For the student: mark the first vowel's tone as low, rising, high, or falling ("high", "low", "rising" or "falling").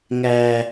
high